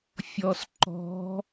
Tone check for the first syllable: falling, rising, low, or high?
low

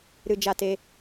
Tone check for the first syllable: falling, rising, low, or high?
high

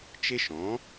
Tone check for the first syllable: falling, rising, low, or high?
high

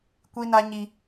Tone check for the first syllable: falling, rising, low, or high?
high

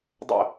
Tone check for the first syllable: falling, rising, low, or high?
falling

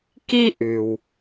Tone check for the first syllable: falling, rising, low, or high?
high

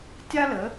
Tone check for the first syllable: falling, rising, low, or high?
high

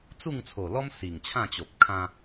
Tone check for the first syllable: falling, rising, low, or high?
falling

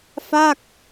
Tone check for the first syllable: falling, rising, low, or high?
falling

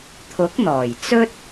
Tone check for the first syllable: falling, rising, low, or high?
rising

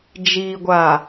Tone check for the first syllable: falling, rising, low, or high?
low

